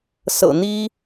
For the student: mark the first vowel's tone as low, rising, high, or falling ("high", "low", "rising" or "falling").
low